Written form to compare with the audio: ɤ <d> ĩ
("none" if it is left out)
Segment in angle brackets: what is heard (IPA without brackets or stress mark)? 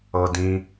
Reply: d